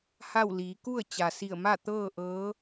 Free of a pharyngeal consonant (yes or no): yes